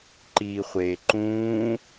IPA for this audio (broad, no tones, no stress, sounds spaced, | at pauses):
ǃ iː χʷ eː ǃ ũː